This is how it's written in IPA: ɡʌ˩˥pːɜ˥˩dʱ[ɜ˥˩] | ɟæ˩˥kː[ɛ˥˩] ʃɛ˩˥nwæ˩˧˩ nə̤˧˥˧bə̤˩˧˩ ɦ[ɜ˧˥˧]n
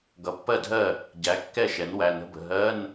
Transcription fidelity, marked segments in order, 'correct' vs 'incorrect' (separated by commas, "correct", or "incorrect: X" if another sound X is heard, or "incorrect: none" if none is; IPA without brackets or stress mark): correct, correct, correct